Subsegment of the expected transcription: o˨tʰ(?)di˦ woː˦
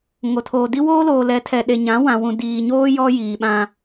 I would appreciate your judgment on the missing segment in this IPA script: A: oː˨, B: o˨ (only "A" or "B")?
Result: A